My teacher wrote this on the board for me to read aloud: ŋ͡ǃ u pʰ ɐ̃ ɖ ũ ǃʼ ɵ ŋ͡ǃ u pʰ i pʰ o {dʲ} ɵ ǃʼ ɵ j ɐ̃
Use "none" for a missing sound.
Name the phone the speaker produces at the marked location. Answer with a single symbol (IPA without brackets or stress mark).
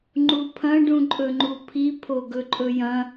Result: ɡ